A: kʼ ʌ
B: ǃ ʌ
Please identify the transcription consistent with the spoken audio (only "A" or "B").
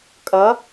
A